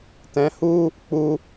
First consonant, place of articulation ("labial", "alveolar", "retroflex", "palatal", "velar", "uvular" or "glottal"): alveolar